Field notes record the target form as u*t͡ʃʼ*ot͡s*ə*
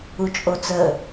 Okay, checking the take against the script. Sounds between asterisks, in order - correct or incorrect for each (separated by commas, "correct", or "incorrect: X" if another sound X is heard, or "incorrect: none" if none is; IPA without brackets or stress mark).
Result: correct, correct